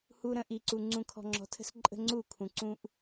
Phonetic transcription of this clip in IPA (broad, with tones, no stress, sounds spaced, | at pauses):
h u˨ ɾ ə̃˨ ʔ i˨ ǀ u˨ ŋ͡ǀ ũ˨ kʰ ɔ̤˨ ŋ͡ǁ ɔ̤˨ tʰ ə̤˦ s ǃʼ ə̤˦ ŋ͡ǀ u˦˨ kʰ ũ˨ ǀ ũ˦ ʔ